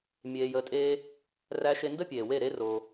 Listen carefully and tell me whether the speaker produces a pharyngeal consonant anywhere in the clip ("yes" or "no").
no